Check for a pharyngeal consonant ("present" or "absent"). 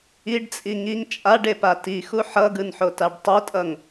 present